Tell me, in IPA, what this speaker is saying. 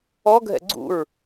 ɔ ɡʱ ɛ̰ ɡ͡ǀ ṵ ɹ

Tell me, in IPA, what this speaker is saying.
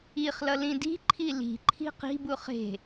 i χ l ʌ l ĩ d i̤ ǃʰ i l i̤ ǃʰ i̤ q i̤ b u χ e̤

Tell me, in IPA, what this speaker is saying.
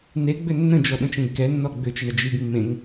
n e ɡ͡b ʏ nː ə̃ d͡ʒ ɔ ɗ ə̃ t͡ʃ ẽ ɡ k ɛ nː ɔ ɡ͡b ʏ t͡ʃ ə ɳ ə d͡ʒ i ɡ mː ẽ ŋ

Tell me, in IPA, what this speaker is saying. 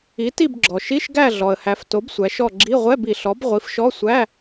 i˩˥ t i˦˨ b ɡ͡ǁ ɔ˩ ʃ i˧˥˧ ʃ ɡ æ˦˨ ɮ ɔ˩ ə̯ h æ˩˧ f t o˩˥ b sʷ æ˩˧ ʃ ɔ˦˨ ɡ͡ǁ i˧˥˧ ʁʷ ɛ˧˥˧ b i˩ ɬ ɔ˩˥ b ʁʷ i˩˥ f ʃ ɔ˧˥˧ sʷ æ˧˥˧

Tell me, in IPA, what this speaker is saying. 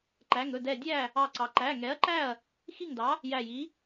ǃ æ˩˧˩ ŋ ɵ˩˧˩ d ɛ˧˩ dʲ æ˥˩ | ɑ˧˩ ǀ ɑ˩ ǃ æ˩˧˩ ŋ ɛ˩˥ ɐ̯ ǃ æ˥˩ ɐ̯ | x i˥˩ ŋ d ɑ˩˥ | j æ˧˩ j i˩˥

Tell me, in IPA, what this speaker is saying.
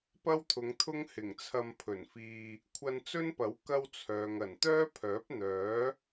p ɐ˥ w t̪ʰ ʊ˨˧ ŋ t̪ʰ ʊ˥ ŋ h ɪ˨˩ ŋ t͡sʰ ɐ˧ m pʰ ɵ˨˩ n f iː˧ | kʷʰ ɐ˧ n t͡s ɵ˥ n p ɐ˨˥ w k ɐ˥ w t͡sʰ œː˨ ŋ ɐ˨˩ n t̪ œː˥ pʰ œː˨˥ p̚ n̪ œː˨˥

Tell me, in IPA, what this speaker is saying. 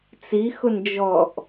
t͡s i x ʊ n d͡ʒ ɔ ʔ

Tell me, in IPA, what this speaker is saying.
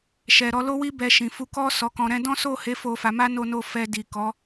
ʃ ɛ˨ ɾ ɔ˧ l o˦ w i˦ b ɛ˧ ʃ ĩ˨ f u˧ k ɔ˦ s ɔ˧ k ɔ̃˧ ɾ ɛ̃˦ d ɔ̃˦ s o˦˨ h e˨˦ f o˧ f a˧ m a˦ n o˧ n o˧ f ɛ˧ d i˨ k ɔ˨˦

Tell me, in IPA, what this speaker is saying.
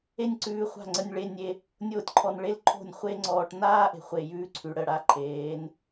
e˦ nʲ ǀ ʉː˧ χʷ a̤˦˨ ŋ͡ǀ ə˧ nʲ ɭ e˧ nʲ e˧ | nʲ oː˦ tʲ ǃʰ ɔ˧ n ɭ e˦ l ǃʰ o̤˦˨ nʲ χʷ e˦ ŋ͡ǀ ɔː˧ ʈ n aː˦ ʔ e̤˨ χʷ e˨ j ʉː˧ ǀʰ ʉ˨ ɽ ə˦˨ ɽ a˦ ǃʰ eː˨˦ n

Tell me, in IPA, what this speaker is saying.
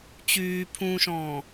t͡ɕ yː pʰ ũː ʃ ɔ̃ː

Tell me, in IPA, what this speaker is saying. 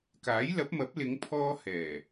k aː˨˥ j l ɐ˨˥ p̚ m ɐ˨˥ p̚ l ɪ˨˧ ŋ pʰ ɔː˥ h ɛː˨˩

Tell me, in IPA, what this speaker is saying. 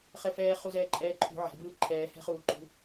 χ ɛ f ɛː χ u z ɛː ǃʼ ɛː ǃʰ ṳ ʕ ɛ̤ b ɯː ǃʰ ɛː h ɛ̤ χ uː ǃ ṳ

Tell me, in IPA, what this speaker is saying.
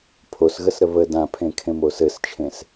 pʰ o s ɣ ə s ɾ ə β ə d ã pʰ ẽ kʰ ẽ m o s ɘ s t͡ʃʰ ẽ s

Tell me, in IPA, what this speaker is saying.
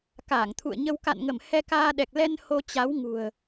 k a˧˩ ŋ t̪ʰ ṵ˧˨ ə̯ ɲ ə˧ w k a̰˧˨ n ŋ ə˧˩ m h ɛ˧ k aː˧ ɗ ɛ˨˩ k̚ l ɛ˧ n h o˧ t͡ɕ a˨˦ w ŋ ṳ˨˩ ə̯

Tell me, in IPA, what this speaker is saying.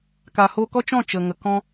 k a˨ h o˧ k ɔ˦ t͡ʃ ɔ̃˦˨ t͡ʃ ə˨ ŋ ə˨ k ɔ̃˦

